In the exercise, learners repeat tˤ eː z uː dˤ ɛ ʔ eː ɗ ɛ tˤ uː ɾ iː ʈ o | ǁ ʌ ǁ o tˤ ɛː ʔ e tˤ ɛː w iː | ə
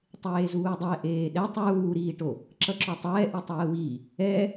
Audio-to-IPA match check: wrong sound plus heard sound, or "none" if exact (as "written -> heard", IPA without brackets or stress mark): ə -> ɛ